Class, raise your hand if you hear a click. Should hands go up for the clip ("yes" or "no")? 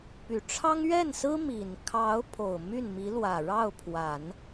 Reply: no